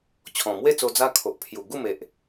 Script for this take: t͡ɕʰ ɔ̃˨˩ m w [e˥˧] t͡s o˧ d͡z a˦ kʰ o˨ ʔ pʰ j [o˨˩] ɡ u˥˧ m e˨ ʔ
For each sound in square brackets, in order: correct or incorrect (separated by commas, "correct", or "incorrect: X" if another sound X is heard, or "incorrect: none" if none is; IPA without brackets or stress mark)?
correct, incorrect: u˨˩